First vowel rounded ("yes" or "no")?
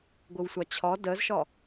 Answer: no